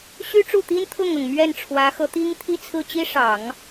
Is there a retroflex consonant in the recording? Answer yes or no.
yes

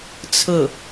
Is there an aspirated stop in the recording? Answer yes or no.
yes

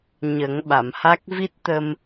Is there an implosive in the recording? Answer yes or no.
yes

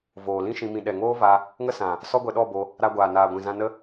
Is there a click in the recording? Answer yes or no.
no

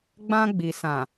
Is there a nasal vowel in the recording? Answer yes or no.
yes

